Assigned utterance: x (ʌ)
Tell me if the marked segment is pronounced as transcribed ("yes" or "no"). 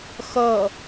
yes